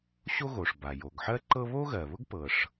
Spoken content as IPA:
ɕ o˥ ɣ o˩ ʂ b a˩ j o˩ ɡ ħ ɜ˥ ǃ ɤ˥ β o˥ ɣ ɜ˩ β ʊ˥ ɡ p ɤ˩ ʂ

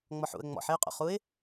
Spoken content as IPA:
ŋ͡m ɔ ħ ṵ ə̯ ŋ͡m ɔ̰ ħ e ʊ̯ qʼ o̰ χ u ɪ̯

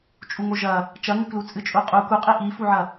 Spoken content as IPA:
t͡ʃʼ u ŋ o ʒ ɐ | t͡ʃ ɐ ŋ ʉ k l u t͡sʼ ɨ t͡ʃʼ u qʼ u k u qʼ i ʔ i f u ʕ ɐ

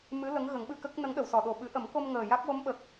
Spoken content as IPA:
m ɨ˧˥ l ə˧˥ ŋ ɣ ə˨˩˦ ŋ ɓ ɨ˧ k ə˦˥ k̚ n ə˧˥ ŋ ɗ ə˨˩˨ w s ɔ˨˩˨ ɗ o˨˩ ɓ ɨ˨˩˦ ʔ ə˨˩˦ m k o˧ m ŋ əː˨˩ j a˦˥ k̚ w o˧˥ m ɓ ə˨˩ k̚

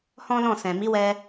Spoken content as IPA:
h ɔ̃˦ l ɔ̃˦˨ s ɛ̃˨ m i˨˦ w ɛ˧

